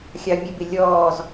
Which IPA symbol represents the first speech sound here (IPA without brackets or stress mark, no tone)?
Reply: xʲ